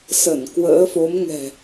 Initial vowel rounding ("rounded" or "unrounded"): unrounded